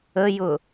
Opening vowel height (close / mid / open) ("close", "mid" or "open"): mid